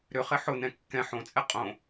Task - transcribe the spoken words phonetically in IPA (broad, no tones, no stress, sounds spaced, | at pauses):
ɾ ʏ χ ɪ ħ ʊ n ɛ̃ kː ɛ̃ ħ õ t͡sʼ ɛ qʼ õ